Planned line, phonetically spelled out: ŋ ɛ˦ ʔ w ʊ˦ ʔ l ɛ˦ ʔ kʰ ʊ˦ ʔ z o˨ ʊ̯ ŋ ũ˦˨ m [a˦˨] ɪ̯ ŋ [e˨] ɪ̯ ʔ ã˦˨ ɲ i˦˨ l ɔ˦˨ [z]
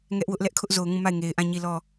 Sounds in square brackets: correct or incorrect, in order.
correct, correct, incorrect

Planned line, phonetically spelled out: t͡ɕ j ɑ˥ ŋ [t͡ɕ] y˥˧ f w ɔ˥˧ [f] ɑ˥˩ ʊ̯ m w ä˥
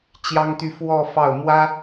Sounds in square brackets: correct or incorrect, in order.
incorrect, correct

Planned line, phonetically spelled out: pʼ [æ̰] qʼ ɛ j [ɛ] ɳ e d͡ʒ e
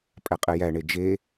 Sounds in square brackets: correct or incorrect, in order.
incorrect, incorrect

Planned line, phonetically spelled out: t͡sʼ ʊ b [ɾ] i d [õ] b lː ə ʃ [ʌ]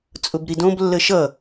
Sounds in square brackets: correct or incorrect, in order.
correct, correct, correct

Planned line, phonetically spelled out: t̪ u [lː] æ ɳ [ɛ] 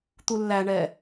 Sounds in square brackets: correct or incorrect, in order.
correct, correct

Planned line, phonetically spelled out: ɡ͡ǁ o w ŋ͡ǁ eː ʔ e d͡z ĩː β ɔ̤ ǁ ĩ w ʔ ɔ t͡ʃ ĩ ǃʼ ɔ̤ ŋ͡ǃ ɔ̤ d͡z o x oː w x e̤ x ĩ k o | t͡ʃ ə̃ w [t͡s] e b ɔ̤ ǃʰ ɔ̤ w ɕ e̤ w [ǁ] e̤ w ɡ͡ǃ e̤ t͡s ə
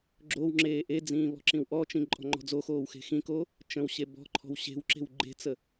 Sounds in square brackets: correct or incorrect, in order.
incorrect, correct

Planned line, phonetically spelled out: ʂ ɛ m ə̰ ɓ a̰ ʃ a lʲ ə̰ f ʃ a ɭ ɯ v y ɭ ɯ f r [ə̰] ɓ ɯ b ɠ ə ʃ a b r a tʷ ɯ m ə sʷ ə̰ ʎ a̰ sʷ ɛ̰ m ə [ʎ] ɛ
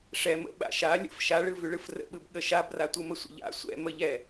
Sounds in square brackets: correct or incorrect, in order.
correct, correct

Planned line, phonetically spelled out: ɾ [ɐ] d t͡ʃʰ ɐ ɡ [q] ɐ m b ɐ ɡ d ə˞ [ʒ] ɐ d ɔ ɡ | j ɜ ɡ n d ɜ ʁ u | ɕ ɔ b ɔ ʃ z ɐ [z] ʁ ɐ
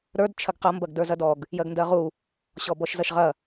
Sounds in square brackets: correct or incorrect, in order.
incorrect, correct, incorrect, incorrect

